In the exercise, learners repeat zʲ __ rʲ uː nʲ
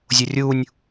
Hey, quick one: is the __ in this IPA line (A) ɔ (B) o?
B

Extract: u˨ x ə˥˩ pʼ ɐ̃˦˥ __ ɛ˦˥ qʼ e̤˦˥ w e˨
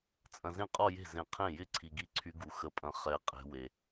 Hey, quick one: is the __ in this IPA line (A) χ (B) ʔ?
A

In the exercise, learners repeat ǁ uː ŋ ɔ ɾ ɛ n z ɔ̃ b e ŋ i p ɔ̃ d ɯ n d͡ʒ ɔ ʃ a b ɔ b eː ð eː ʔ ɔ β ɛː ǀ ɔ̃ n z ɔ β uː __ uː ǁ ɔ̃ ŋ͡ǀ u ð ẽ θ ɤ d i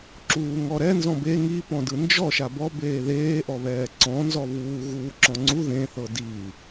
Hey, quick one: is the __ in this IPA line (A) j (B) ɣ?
B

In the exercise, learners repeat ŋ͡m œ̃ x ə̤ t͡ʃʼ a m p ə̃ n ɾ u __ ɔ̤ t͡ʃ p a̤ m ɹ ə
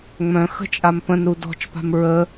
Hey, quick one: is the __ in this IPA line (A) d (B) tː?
A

